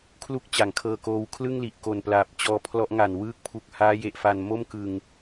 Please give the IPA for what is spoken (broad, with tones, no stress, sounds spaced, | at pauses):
kʰ l u˥˩ k̚ t͡ɕ a˨˩ ŋ kʰ ɤː˧ k oː˧ w kʰ l ɯ˥˩ ŋ l i˨˩ ʔ k o˨˩ n p l aː˨˩ p̚ t͡ɕ ɔː˧ pʰ l ɔ˦˥ ʔ ŋ a˨˩ n w ɯː˦˥ k̚ pʰ u˨˩ k̚ h aː˦˥ j e˨˩ ʔ f a˨˩ n m o˥˩ m k ɯ˨˩ ŋ